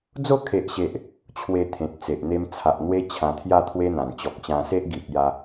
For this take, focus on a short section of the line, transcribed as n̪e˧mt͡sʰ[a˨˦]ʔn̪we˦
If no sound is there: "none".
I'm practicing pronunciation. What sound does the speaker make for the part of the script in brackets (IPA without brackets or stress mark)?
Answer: a˨